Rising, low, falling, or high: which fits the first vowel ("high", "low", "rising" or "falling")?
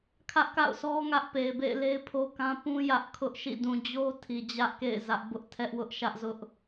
high